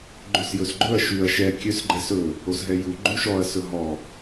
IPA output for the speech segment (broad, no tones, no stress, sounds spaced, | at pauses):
ɡ͡ǃ ʉ s j ɵ s ɡ͡ǃ ɵ ɐ̯ ʃ ʉ ɐ̯ ʃ ɛ kʲ ø s ɡ͡ǃ ɛ s ɵ | o s ɦ ɛ j u ɡ͡ǃ u ʃ ɔ ɐ̯ s ɵ ɦ ɔ